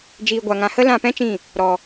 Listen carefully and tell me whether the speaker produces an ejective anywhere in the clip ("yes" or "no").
no